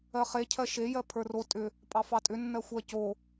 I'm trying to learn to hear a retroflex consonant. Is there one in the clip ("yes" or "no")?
no